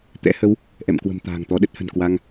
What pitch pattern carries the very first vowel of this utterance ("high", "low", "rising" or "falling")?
rising